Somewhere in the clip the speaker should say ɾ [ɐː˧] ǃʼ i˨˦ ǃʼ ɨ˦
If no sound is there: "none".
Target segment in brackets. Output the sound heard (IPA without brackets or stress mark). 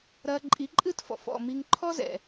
ɐː˧